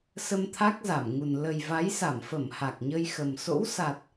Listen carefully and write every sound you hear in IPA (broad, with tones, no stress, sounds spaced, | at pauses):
s ə˧ m t̪ʰ a˦˥ k̚ z a˧˩ m ŋ u˨˩ n l ə˨˩ j v a˨˦ j s a˧˩ m f ə˧˩ m h a˨˩ k̚ ɲ ə˧ j x ə˨˩ m s o̰˧˥ w s a˨˩ t̚